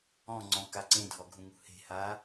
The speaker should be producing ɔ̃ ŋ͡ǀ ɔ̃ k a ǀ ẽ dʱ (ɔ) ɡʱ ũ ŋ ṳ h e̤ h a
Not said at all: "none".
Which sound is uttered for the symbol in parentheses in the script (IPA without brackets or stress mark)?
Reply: ɔ